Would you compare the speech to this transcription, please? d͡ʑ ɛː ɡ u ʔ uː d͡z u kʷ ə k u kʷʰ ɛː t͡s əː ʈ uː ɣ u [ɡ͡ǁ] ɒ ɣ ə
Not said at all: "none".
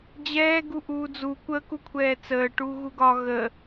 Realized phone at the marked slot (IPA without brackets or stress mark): ɡ